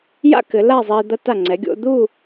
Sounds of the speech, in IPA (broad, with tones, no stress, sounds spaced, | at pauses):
j a̰˥ k ɘ˩˧ l a˥˧ zˤ i˧ d̪ ɐ˧ t a˧˩ ŋ͡ǀ ɛ˩˧ ɡʲ o̰˧ d̪ u˥˧